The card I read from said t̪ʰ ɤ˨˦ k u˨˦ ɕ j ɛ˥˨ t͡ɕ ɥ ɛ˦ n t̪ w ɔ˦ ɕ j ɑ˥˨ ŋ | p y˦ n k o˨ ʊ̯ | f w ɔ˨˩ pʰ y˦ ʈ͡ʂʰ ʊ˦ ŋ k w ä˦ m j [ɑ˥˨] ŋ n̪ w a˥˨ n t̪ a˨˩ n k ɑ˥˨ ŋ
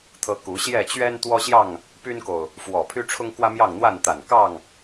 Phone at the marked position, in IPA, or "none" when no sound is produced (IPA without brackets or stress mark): ɑ˥˨